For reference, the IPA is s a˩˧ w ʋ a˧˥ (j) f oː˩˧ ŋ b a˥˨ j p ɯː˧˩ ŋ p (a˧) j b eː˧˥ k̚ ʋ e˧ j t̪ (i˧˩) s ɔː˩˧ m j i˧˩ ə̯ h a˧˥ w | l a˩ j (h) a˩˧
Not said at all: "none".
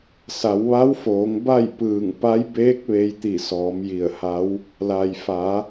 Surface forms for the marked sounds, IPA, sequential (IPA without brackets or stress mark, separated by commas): w, a˧˥, i˧˩, f